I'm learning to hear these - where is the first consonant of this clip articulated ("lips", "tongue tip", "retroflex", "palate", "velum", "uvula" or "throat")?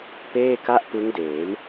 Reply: lips